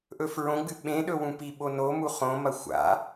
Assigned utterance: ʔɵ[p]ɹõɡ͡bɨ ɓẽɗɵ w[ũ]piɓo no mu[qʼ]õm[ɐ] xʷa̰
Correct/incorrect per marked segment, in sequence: incorrect, correct, incorrect, correct

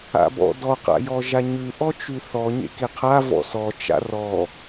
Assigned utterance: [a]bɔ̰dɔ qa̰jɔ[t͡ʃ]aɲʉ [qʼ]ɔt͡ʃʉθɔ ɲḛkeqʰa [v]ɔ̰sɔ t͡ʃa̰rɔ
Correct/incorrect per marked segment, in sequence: incorrect, incorrect, incorrect, correct

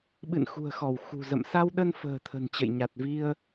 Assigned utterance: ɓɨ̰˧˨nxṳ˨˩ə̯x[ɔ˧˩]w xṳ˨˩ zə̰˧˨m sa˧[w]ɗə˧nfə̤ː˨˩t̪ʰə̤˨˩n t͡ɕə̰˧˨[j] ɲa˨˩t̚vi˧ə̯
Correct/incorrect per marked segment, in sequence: correct, correct, correct

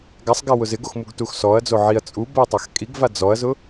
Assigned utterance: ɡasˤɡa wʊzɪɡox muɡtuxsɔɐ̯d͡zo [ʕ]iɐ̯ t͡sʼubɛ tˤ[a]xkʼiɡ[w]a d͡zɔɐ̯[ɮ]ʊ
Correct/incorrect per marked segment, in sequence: correct, correct, incorrect, incorrect

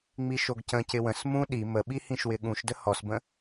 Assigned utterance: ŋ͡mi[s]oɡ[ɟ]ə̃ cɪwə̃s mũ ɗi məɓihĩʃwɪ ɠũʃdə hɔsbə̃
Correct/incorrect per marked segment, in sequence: incorrect, incorrect

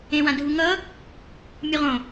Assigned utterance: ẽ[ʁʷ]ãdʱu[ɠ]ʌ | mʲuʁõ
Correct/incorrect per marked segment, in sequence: incorrect, incorrect

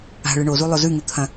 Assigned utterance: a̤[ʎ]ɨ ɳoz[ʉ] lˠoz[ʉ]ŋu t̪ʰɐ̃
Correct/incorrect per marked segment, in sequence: incorrect, incorrect, correct

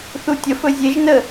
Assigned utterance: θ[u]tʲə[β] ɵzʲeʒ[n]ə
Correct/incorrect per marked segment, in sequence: correct, incorrect, correct

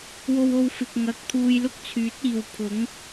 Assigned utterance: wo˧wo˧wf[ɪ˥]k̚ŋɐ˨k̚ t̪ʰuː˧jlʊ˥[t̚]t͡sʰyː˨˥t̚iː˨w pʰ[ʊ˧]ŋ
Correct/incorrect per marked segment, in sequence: incorrect, incorrect, incorrect

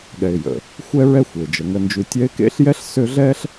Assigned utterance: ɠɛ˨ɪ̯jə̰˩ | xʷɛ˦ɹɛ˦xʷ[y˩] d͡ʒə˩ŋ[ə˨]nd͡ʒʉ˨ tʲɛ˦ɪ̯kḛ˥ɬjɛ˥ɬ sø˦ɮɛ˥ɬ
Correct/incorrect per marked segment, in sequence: incorrect, correct

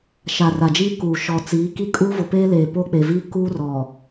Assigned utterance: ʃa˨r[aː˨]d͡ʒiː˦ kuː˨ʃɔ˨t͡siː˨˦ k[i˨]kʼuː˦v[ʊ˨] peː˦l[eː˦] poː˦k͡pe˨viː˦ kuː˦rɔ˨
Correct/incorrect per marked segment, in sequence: incorrect, incorrect, correct, incorrect

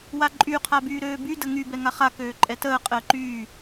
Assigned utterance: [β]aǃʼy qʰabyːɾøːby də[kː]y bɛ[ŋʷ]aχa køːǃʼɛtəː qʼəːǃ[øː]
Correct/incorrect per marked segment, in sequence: incorrect, incorrect, incorrect, incorrect

